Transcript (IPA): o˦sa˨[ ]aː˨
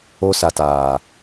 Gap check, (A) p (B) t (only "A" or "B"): B